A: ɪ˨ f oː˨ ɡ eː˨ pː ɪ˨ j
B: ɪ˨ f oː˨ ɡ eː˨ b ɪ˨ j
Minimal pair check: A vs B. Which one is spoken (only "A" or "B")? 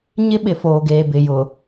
B